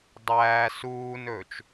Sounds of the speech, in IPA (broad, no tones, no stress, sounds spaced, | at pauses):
dˤ æː s uː n ɵː t͡ʃ